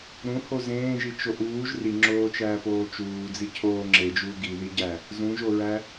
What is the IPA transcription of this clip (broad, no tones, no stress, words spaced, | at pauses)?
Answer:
ɾũho zẽːʒit͡ʃo ʔuːʒ riŋ͡ǁoːt͡ʃæːpoː t͡ʃuːd͡zi cʰoː ŋ͡ǁed͡ʒuː ɡiðiɟæ | zũʒoɹæ